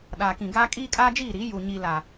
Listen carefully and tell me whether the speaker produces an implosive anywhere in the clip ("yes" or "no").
yes